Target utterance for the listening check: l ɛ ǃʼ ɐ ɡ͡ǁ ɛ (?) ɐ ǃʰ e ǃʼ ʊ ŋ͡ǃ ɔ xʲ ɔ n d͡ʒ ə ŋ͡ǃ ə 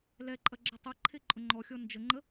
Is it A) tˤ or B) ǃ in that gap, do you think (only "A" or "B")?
A